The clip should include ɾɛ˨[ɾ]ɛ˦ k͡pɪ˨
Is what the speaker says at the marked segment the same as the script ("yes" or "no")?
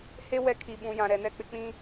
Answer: no